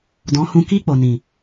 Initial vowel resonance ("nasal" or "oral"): nasal